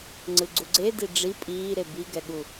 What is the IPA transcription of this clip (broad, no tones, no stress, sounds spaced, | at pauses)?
ŋ͡ǀ ɯ ɡ͡ǀ u ɡ͡ǀ e d i ɖ͡ʐ i pʼ iː ɾ e b i ɡ ɛ ɠ u